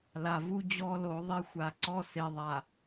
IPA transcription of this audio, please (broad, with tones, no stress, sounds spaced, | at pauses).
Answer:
l a˨ v u˦ d͡ʑ ɔ˦ l o˨˦ ðˤ e˦ xʷ a˨ ǀ ɔ˦ s e˨ ðˤ a˨